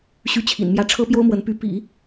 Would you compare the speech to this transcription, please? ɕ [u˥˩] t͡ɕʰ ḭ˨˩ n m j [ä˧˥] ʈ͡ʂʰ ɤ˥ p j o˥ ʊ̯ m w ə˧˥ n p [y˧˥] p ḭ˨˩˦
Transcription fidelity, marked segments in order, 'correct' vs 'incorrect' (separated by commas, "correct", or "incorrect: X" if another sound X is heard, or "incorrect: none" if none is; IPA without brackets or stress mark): incorrect: y˥˩, incorrect: ä˥˩, correct